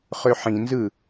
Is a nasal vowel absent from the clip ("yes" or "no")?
no